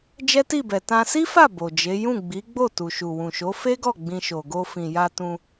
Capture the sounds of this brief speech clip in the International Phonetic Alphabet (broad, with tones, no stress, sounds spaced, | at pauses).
d͡ʒ ɛ˦ t i˦˨ b ɛ˨ t ã˧ s i˦ f a˦˨ b o˨ d͡ʒ e˨˦ j ũ˦˨ ɡ͡b i˨˦ ɡ͡b o˦˨ t u˨ ʃ u˨ w ũ˨ ʃ o˨˦ f e˦ ɡ ɔ˦˨ ɡ͡b ĩ˧ ʃ o˨ ɡ o˧ f ĩ˨ j a˧ t ũ˧